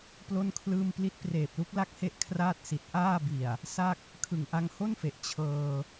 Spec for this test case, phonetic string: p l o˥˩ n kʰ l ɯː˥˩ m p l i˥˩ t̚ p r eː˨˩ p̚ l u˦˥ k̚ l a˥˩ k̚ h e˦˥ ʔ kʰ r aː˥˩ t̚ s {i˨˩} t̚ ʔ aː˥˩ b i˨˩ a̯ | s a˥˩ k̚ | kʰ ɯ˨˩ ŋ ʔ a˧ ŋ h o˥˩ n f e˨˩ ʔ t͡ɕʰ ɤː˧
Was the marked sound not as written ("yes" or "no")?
no